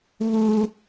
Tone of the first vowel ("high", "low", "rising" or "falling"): high